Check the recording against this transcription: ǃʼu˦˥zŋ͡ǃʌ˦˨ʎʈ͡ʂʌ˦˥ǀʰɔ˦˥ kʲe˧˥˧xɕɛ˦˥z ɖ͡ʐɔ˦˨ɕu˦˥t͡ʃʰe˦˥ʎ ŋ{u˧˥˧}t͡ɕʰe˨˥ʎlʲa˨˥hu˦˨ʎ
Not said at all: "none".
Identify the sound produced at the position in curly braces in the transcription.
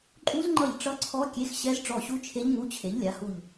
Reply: u˧˥˧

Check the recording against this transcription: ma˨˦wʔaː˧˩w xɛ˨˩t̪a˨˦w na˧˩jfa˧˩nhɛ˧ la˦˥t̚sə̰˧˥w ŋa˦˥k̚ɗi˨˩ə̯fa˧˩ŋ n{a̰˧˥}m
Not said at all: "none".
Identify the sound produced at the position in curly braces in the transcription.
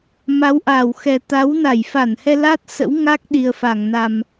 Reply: a˨˩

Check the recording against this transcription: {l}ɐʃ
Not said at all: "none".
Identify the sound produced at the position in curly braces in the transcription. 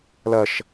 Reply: l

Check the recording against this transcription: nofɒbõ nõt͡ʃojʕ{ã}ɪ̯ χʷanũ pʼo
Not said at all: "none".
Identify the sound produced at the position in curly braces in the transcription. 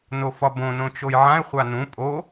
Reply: ã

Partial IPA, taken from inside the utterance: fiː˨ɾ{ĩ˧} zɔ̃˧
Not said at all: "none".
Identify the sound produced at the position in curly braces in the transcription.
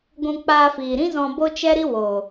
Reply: ĩ˦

